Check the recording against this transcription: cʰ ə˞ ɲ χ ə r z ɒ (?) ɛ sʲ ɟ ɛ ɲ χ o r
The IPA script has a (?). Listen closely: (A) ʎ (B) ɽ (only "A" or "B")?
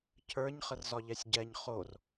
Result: A